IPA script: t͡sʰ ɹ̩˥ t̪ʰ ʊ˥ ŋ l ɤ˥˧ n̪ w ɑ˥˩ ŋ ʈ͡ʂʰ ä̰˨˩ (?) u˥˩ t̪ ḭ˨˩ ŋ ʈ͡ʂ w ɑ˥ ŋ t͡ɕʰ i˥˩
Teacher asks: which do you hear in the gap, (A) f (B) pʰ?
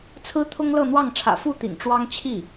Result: A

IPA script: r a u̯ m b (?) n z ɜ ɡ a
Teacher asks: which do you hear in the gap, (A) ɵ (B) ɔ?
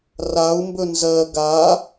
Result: A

